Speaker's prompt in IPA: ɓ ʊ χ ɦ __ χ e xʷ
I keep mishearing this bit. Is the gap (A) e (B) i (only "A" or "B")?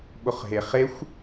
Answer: A